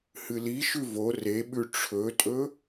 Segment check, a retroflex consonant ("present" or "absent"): present